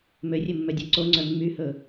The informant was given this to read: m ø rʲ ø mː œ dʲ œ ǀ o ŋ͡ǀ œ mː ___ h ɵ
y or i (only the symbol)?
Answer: y